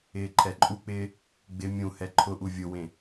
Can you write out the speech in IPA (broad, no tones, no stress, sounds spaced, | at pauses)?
ɪː ǃʰ ɛ ǃʼ u k͡p ɪː | ɡ͡b ɪ mʲ ũ h ɛ ǃʰ ʊ ʔ u vʲ ʊ w ẽ